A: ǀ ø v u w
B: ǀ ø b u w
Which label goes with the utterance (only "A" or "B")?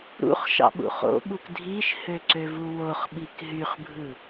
A